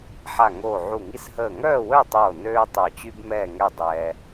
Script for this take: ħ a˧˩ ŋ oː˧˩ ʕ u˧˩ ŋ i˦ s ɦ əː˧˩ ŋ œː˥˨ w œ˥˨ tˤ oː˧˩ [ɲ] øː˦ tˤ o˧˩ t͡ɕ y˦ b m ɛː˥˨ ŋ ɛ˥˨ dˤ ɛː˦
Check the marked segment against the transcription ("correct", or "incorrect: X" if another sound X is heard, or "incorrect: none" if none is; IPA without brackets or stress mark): incorrect: n